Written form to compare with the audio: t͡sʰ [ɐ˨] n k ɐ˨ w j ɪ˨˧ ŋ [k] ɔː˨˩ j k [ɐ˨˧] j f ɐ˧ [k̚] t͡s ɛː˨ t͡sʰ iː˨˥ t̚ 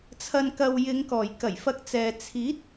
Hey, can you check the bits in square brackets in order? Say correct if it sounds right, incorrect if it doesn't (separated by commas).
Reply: correct, correct, incorrect, correct